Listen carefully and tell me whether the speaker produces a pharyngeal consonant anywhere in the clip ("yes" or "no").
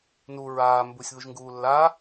no